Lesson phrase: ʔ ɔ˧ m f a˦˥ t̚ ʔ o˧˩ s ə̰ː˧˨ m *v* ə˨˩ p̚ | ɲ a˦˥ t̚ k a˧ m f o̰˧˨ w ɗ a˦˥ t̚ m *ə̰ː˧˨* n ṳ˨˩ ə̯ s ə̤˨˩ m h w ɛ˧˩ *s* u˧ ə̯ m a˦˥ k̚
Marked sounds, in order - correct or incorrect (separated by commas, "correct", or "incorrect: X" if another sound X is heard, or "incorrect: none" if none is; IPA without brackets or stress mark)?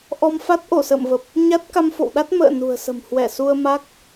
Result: correct, correct, correct